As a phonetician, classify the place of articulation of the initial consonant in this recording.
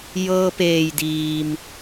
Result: palatal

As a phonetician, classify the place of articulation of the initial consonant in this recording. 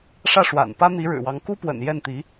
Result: retroflex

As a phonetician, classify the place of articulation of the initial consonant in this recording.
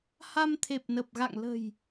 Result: glottal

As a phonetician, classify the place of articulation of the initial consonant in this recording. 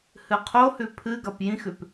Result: glottal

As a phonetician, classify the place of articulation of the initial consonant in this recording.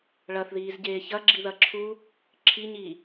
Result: retroflex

